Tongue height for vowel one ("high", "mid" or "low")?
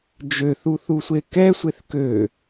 mid